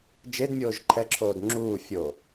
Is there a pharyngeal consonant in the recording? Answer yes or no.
no